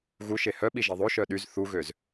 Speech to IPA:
ɣ u ʃ e h œ ɓ i ʒ i ðˤ o ʃ œ ɗ y z θ u ɣ ø z

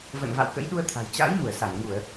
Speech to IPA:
v ə̰˧˨ n v a̰˧˨ w k ə̰˧˥ j ɗ u˧ ə̯ t̪ʰ a̤˨˩ j t͡ɕ a̰˧˥ j m u˧˩ ə̯ s a˧˩ n ŋ u˧˩˨ ə̯

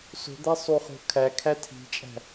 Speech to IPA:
s o̤ d̪ æ sˤ u χ o̤ kʰ æ kʰ æ tʰ i̤ t͡ʃʼ æ̤

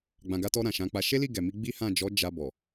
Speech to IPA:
ɡ͡b ã˨ ɡ a˧ t ɔ˧ ɾ ã˨ ʃ ã˨˦ k͡p a˧ ʃ e˦ l i˦˨ ɡ ɛ˨ m i˧ ɡ͡b i˦ h ã˦˨ d͡ʒ ɔ˨˦ d͡ʒ a˧ b ɔ˨

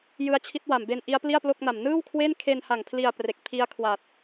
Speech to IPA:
j ɯ˦˥ a̯ t͡ɕʰ i˦˥ t̚ w a˨˩ m b e˧ n ʔ i˦˥ a̯ p l i˥˩ a̯ p l o˥˩ k̚ n a˨˩ m n ɯː˥˩ w kʰ w e˥˩ n kʰ e˧ n h a˨˩ ŋ pʰ l i˧ a̯ p r e˨˩ k̚ pʰ i˦˥ a̯ kʰ w a˨˩ t̚

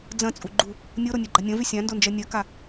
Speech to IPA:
d͡z ɐ̃ t͡sʼ u ɡ͡ǃ u | nʲ o ɾ o nʲ a ɡ͡ǃ a nʲ ɐ̃ v y sʲ ã n d o n d͡ʒ ɜ nʲ ɜ k a

